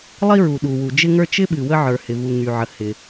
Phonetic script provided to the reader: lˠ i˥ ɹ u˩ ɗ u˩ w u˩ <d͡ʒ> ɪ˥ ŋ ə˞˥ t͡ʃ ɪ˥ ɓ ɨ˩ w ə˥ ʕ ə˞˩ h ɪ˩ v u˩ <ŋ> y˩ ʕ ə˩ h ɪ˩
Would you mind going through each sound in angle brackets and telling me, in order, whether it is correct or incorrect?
correct, correct

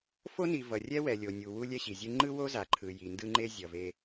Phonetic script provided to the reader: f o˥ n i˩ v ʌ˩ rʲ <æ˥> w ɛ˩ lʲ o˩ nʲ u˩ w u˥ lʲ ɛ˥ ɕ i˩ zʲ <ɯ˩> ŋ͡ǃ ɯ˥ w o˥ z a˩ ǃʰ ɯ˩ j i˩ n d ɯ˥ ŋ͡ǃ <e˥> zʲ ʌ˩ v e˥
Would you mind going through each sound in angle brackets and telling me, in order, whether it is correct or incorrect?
incorrect, incorrect, correct

